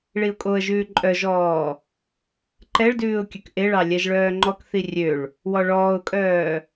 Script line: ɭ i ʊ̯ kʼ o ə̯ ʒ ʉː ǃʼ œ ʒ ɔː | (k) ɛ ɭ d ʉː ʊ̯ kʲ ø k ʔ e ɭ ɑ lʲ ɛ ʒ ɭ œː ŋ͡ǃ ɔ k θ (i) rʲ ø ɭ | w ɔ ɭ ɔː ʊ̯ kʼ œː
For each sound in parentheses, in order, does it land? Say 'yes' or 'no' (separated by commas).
no, yes